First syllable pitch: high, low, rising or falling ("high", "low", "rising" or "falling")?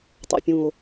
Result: low